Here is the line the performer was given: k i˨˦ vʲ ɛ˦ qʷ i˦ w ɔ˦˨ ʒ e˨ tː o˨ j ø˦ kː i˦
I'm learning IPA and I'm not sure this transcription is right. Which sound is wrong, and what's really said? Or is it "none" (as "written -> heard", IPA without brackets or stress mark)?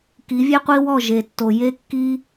ø˦ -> e˦